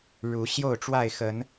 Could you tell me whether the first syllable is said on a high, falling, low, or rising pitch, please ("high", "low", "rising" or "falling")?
rising